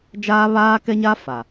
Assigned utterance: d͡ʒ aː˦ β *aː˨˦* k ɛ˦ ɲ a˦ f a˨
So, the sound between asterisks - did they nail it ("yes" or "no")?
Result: no